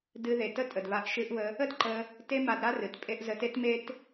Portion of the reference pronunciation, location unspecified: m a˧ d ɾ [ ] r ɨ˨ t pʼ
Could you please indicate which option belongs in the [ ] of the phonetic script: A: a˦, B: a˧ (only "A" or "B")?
A